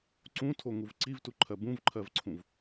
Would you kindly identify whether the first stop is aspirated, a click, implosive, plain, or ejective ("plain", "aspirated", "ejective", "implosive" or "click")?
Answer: click